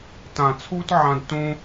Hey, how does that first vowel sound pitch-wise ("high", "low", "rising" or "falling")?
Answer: low